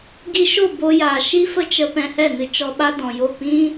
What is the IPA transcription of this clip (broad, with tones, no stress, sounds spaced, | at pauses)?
ɡ i˧ ʃ o˦˨ b o˧ j aː˨ ʃ i˦ f ə˦ t͡ʃ ə˧ p ɛ̃˧ h ɛ˦˨ n ɨ˧ t͡ʃ ɔ˧ ɓ a˦ d ɔ̃˨ j o˦˨ p ĩ˦